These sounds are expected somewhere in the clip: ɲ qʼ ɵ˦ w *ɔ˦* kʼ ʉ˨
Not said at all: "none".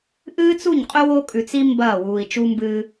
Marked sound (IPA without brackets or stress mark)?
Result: o˦